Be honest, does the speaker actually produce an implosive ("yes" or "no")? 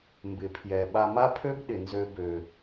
yes